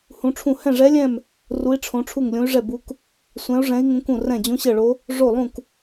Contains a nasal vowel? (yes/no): yes